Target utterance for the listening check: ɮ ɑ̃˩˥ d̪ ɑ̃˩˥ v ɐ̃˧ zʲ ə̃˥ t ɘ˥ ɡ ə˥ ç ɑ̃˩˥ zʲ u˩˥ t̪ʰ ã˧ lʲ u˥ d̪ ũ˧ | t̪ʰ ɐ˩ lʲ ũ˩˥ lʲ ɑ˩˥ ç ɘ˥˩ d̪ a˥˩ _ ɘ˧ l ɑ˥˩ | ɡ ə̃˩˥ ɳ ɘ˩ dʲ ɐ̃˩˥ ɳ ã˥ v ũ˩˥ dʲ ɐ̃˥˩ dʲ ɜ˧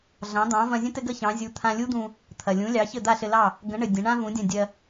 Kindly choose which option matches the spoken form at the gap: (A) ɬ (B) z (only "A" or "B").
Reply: A